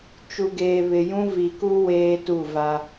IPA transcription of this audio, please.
t͡ʃ u˨ ɡ eː˨ β ɪ˨ j ũ˦ v i˨ k u˦ w eː˦ t u˦˨ v a˦

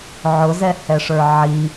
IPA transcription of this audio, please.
ʕ ʊ z ɛ h ɛ ʂ ə˞ ʕ i

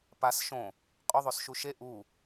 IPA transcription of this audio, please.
p a s ʃ õ | qʼ o ðˤ o s ʃ u ʃ e ʔ u

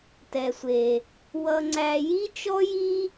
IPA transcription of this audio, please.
t ɛ˩ sʷ e˩ | w ʌ˧ ŋ͡ǀ æ˧ j i˥ t͡ʃ ɔ˥ j i˥

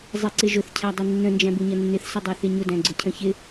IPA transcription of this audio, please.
zˤ i ǀ ɪ ʒ ʊ θ cʰ æ dˤ i nː ə̃ n d͡ʒ æ̃ b u ɲ ʌ nː ɪ θ s ə dˤ ɜ θ ɪ ɲ ʊ d æ̃ ɡ͡ǀ ʊ cʰ ə̃ ç ɪ

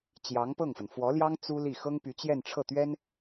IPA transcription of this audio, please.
t͡ɕ j ɑ˧˥ ŋ p ɤ˥˩ ŋ f ə˩ n f w ɔ˧˥ l j ɑ˥ ŋ t͡s u˥ l i˥˩ x ɤ˥ ŋ p y˧˥ t͡ɕ j ɛ˥˧ n ʈ͡ʂʰ ɤ˥˩ t̪ ɥ ɛ˥ n

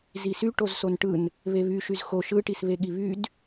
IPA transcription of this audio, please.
z i s y ʈ o z s o n ʈ ɯ n | β e β y ʃ y z x o ʃ ɯ ʈ i s β e ɠ i β y d

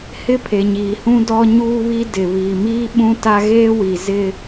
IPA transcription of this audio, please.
h ɪ˦ pʰ e˨ ɲ iː˨ h ũ˦ d ɔ˦ ɲ uː˦ β i˦ d ɪ˨ β iː˨ m iː˦ ɓ ũ˦ t a˦ ɣ eː˦ w i˨ z ɪ˦

